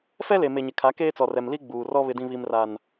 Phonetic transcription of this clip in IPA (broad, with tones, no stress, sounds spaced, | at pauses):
f ɛ˦ l e˨ m e˨ ɲ ɪ˨ kʰ a˨˦ k eː˦ t͡s ɔ˨ r ɛ˨ m l i˦ ɡ͡b uː˨ r ɔ˦ β ɪ˦ d ĩ˦ β i˦ m r a˦ n